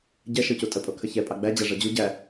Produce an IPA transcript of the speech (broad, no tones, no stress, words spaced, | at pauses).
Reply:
ɟɛ ʃɤcutʼəpʼo kʰəçɛpʼɑ ɡ͡bæd͡ʑa ʐɤd͡ʑu ɟæ